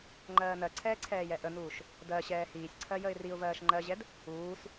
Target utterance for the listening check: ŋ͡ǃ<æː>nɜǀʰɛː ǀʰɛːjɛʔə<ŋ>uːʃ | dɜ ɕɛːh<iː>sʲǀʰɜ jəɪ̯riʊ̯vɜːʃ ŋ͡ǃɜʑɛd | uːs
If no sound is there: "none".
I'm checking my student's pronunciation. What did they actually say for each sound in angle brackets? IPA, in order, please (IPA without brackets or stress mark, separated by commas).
ɜː, n, iː